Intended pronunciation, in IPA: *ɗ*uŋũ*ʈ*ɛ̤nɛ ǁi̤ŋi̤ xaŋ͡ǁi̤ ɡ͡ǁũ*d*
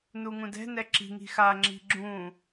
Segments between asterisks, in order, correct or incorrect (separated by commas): incorrect, incorrect, incorrect